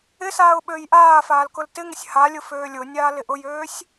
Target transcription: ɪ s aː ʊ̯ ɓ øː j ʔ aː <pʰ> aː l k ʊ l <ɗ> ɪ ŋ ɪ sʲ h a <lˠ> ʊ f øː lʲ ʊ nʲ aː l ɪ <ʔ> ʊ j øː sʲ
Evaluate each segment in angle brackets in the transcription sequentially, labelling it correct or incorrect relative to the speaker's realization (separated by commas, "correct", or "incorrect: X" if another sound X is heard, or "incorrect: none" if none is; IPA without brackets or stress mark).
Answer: incorrect: f, incorrect: t, incorrect: lʲ, correct